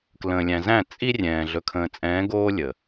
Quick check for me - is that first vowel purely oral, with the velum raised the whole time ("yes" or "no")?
no